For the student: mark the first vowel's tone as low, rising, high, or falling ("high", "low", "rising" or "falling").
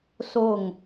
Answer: falling